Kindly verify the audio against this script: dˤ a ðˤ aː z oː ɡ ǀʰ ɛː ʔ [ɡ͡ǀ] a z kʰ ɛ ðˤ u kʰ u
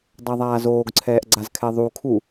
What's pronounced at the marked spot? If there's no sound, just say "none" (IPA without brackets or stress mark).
ɡ͡ǀ